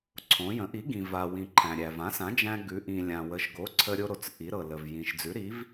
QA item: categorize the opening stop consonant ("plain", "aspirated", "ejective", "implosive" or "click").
click